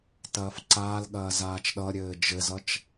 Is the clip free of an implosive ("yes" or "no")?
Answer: no